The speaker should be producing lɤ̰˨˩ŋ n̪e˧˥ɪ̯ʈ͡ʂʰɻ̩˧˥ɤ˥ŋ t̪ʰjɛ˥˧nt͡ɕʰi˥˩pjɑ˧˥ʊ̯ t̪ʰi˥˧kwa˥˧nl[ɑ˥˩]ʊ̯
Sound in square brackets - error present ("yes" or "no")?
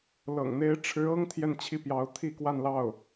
no